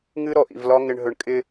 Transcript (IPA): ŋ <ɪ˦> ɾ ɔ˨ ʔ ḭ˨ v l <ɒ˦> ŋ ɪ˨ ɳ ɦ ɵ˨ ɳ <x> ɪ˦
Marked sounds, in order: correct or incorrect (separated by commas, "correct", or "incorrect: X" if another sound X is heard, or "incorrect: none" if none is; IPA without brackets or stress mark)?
incorrect: ɨ˦, correct, incorrect: kʼ